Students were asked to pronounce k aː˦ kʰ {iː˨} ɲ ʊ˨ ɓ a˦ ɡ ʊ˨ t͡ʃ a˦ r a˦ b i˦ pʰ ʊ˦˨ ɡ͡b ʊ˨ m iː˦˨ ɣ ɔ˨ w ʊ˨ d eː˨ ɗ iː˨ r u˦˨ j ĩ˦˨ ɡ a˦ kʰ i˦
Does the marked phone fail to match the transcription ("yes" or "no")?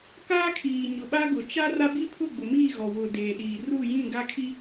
no